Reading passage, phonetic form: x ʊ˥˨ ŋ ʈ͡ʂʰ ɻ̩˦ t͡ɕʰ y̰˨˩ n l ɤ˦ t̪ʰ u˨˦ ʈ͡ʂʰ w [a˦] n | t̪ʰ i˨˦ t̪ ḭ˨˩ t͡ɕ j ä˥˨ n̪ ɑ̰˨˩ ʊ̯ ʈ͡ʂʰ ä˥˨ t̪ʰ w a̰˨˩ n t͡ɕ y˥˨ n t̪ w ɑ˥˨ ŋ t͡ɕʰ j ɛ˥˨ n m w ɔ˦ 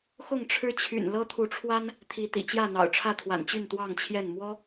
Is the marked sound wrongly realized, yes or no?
no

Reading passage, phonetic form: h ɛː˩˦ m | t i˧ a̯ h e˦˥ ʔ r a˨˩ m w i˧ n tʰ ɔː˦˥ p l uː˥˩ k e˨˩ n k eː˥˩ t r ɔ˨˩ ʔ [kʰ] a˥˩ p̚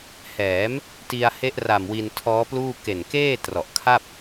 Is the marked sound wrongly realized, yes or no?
no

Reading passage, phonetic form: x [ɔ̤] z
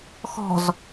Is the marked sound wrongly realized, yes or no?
no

